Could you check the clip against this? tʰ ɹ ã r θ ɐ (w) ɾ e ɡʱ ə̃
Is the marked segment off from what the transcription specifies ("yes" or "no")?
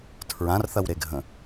no